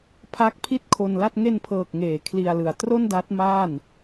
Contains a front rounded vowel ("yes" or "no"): no